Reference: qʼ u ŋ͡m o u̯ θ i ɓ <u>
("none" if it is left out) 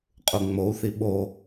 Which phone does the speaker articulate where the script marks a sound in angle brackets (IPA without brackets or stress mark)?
o